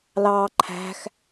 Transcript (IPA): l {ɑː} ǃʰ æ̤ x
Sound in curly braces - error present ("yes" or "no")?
no